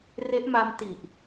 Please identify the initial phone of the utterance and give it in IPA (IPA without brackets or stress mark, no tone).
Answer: r